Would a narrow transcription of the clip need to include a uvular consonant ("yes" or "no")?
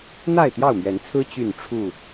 no